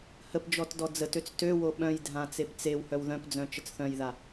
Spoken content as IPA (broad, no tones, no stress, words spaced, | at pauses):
həpd͡ʒɔt dɔd͡zətøt͡s tøwo ɓœ̃jdʱã t͡sept͡sewhœw ðœ̃pd͡zœ̃ t͡ʃət͡sθœ̃jða